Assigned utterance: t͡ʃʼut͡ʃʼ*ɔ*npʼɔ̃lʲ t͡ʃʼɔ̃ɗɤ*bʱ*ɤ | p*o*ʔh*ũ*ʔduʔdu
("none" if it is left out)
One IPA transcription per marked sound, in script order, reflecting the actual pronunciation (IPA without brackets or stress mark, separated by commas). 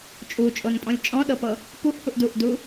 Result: o, p, u, u